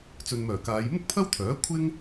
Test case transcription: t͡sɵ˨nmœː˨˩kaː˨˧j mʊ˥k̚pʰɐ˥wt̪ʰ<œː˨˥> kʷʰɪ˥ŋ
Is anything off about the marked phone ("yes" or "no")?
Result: no